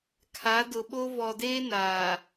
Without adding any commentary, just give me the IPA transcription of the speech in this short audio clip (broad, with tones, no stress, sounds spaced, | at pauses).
kʰ a˨˦ d ʊ˨ ɓ o˦ v ɔ˨ d eː˦ n aː˨